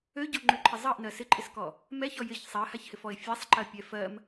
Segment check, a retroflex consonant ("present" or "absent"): absent